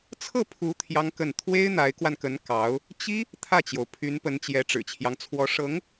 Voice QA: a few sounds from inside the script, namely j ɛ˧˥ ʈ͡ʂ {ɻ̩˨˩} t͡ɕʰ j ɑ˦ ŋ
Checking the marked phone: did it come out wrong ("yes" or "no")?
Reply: no